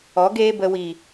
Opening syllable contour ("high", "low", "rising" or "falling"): rising